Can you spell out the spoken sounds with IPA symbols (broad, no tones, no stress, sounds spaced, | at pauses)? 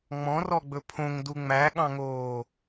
ŋ͡m ɔ̃ r ɔ ɡ͡b ɵ pʰ õ ŋ d u ŋ͡m æ ɠ ɑ̃ ŋ oː